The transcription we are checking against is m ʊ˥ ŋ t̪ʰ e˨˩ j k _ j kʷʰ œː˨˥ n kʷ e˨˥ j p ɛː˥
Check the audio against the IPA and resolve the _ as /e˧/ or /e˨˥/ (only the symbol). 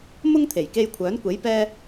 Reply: e˧